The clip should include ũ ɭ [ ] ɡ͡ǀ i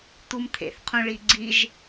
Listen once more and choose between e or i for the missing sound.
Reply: i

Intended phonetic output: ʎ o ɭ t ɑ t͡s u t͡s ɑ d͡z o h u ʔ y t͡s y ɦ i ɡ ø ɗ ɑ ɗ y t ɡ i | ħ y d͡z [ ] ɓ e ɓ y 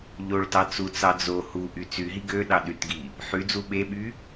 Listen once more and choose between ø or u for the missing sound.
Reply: u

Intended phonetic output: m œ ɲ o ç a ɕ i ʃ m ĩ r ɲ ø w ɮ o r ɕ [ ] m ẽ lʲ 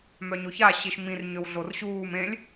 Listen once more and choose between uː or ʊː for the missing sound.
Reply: uː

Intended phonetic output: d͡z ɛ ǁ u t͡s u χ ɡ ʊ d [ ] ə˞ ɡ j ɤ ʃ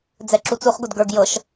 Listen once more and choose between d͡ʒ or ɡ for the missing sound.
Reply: ɡ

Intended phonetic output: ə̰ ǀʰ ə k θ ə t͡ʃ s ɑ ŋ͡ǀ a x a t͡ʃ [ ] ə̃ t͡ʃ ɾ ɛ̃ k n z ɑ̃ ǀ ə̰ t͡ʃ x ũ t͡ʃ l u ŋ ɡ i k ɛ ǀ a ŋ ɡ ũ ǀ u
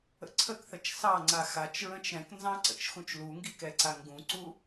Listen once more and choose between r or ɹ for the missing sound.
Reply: ɹ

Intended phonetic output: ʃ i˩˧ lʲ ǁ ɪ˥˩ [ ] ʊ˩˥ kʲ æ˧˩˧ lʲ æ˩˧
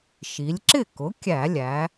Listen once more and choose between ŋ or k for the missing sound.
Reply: k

